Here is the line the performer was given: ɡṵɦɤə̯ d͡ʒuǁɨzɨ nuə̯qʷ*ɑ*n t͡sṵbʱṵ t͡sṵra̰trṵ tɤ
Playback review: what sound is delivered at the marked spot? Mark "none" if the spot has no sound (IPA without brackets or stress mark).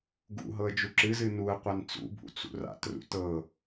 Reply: a